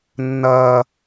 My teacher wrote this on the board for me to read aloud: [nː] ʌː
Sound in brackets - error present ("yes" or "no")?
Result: no